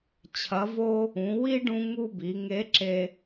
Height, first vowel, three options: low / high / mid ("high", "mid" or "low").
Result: low